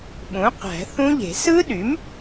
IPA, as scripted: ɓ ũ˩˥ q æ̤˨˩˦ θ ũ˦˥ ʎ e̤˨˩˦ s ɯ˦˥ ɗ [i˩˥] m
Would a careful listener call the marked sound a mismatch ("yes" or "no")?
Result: yes